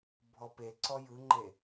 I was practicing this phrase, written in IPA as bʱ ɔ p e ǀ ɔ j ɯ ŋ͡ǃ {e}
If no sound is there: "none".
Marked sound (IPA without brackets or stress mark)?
e